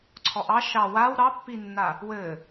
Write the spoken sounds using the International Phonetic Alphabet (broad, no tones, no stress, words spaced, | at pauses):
ǀʰɔʔɑ ʃɑ waw ɾɑpːinːa | wɘ